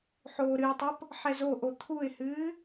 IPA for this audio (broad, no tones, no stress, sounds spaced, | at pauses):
ħ oː ɾ ɨ ɪ̯ tˤ o p | ħ ɛ z o ʔ o t̪ʰ u ɪ̯ h ɨː